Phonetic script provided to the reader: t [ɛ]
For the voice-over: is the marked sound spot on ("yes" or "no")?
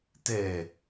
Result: yes